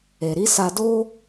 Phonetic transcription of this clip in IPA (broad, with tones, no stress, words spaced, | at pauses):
e˨ɾi˨˦sa˧do˦